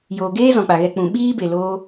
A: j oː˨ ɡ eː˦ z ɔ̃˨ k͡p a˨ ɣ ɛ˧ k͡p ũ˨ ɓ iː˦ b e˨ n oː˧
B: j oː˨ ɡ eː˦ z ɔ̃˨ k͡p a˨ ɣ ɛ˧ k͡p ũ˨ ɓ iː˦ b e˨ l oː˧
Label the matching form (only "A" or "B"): B